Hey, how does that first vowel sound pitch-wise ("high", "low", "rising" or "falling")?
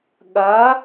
rising